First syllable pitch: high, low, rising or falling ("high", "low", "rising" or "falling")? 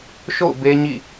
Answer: falling